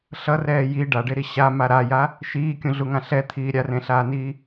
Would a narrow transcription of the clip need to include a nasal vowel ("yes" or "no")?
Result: yes